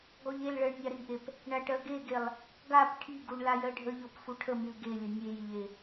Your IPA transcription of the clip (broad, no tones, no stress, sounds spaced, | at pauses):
ɡ ɔ ʎ e l ɭ ɜ ɳ nʲ a ɾ i ʔ e p | ɳ a ʈ ɜ ɡ e ɡ e lˠ | ɡ a p ʈʰ i ɡ u ɳ l a j ɜ ɖʱ ə ʎ ɔ p f u ʈʰ ə m i l ɡ e lʲ ə nʲ e j ʎ e